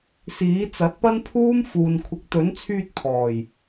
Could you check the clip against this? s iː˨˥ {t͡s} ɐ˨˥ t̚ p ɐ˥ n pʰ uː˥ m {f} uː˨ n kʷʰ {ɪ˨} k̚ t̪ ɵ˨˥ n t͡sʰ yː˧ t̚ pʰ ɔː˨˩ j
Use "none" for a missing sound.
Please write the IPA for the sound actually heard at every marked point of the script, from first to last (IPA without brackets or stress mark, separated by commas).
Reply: t͡s, f, ɪ˨